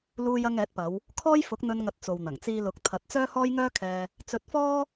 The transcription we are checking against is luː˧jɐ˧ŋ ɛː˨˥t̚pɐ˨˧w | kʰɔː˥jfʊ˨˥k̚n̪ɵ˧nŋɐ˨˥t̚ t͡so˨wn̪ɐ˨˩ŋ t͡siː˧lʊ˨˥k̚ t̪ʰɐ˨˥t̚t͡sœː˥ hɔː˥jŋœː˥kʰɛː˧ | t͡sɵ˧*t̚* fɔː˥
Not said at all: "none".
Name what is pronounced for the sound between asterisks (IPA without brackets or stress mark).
t̚